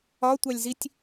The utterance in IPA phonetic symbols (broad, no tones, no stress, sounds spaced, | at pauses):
ɒ tʷ ɑ lʲ z i tʲ